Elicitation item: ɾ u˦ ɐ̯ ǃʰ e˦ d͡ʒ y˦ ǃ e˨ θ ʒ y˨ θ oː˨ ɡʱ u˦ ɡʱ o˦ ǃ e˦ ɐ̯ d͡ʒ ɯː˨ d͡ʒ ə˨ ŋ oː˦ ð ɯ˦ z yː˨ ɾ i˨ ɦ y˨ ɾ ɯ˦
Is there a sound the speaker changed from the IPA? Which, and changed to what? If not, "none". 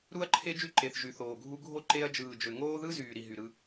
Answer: ə˨ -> ø˨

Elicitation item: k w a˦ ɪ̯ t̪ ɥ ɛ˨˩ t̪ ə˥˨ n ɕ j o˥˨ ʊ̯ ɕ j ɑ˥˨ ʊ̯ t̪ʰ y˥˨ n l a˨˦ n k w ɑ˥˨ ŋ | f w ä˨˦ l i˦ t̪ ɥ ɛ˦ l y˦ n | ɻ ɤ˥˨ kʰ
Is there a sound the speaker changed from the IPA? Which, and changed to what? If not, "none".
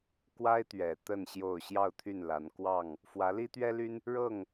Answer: kʰ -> ŋ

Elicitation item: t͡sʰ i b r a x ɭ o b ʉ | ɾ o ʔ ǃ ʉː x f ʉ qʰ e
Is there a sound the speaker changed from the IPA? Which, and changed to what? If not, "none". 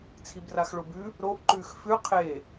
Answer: none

